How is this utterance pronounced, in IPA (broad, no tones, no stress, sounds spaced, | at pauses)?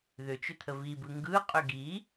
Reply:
ð ʏ t͡ʃ ʏ t̪ʰ ə v i b ɯ ŋ ɡ ɯ qʼ ʏ ɡ i